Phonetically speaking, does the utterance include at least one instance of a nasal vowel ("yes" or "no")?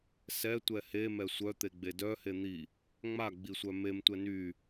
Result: no